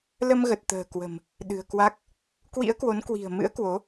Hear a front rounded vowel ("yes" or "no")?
no